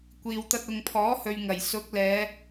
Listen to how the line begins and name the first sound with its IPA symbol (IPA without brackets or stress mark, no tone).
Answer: kʷ